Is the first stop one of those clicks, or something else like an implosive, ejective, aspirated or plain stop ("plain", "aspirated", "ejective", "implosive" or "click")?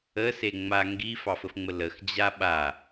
plain